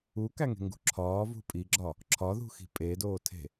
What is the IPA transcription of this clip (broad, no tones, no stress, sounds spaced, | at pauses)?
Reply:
u k æ ŋ e̤ ŋ ɡ ṳ ǁʰ ɒː v ṳ pʼ i ɡ͡ǁ ɒ | ǁʰ ɒ ð ṳ x i̤ pʼ e d oː tʰ e̤